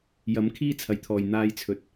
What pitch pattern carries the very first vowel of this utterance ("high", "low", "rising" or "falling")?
rising